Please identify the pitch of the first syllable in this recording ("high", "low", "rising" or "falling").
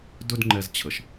high